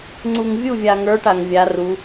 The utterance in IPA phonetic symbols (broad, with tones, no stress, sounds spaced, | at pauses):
ŋ͡ǀ u˨ ŋ vʲ u˦˨ vʲ a˨ ŋ ə˞˨˦ ʈ a˨ ŋ vʲ a˨˦ r u˨˦